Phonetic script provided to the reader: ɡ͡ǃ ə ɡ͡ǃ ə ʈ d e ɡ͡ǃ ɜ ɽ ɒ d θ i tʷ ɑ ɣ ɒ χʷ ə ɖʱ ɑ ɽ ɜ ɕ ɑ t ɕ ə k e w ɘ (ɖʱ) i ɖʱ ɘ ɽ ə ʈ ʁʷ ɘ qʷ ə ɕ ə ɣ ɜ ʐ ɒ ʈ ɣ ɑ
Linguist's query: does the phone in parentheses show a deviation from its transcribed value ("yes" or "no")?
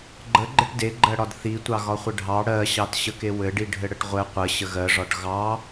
yes